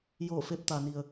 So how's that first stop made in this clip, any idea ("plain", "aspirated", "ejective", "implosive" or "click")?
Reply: plain